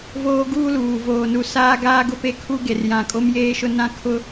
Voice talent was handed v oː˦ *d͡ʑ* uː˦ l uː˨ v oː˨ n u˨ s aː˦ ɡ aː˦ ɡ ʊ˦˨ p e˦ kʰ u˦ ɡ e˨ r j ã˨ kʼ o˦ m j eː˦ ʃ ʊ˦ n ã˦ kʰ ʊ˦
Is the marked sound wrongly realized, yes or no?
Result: yes